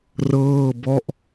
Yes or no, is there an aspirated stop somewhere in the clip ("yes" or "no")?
no